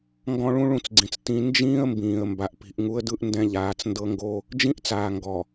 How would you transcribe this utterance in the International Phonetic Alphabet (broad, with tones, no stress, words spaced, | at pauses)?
ŋɡɔ̃˦ɭũ˦ɭũ˦˨t͡sɡ͡ǀĩ˨t͡s tĩ˦ nd͡ʒĩː˦ə̯mbĩː˨ə̯ mba˨ʔpi̤˨ʔŋu˦ə̯dɯ˦ʔ ndɛ̃˦ʎaː˨˦t͡s ndɤ˦ŋɡo˦ | d͡ʒĩ˦ʔt͡saː˨ ŋɡɔ˨